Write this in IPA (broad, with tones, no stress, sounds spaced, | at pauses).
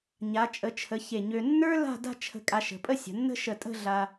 ɲ a˩˧ t͡ʃʼ ə˩˧ t͡ʃʰ ə˩˧ ç e˧˩ ɲ ø˧ nː ə˞˥ l a̤˥˧ d a̤˥˧ t͡ʃʰ ə̤˧ kʼ a˧ ʃ ə̤˩˧ pʼ ə˥˧ sʲ ə̤˩˧ nː ə̤˥ ʃ ə˧˩ tʼ ə̤˥˧ ɮ a˧